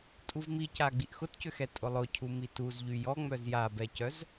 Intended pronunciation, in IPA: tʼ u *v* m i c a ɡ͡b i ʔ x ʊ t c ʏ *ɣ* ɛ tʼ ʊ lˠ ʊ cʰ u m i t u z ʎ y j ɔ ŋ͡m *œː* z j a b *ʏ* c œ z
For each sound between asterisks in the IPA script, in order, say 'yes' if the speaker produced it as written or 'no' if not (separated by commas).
yes, no, no, no